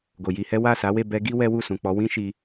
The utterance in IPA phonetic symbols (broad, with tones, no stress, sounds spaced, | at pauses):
ɡ o˨ j i˧ h ɛ˦ w a˦˨ s a˨˦ w e˦˨ b ɛ˧ ɡ i˦ w ɛ˦ w u˦˨ s ũ˨ k͡p ɔ˨˦ w ĩ˦ ʃ i˧